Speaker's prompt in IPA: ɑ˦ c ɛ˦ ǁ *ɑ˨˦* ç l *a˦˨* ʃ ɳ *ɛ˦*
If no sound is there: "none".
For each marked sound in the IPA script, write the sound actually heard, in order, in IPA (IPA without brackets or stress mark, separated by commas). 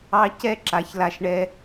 a˨˦, a˧, ɛ˦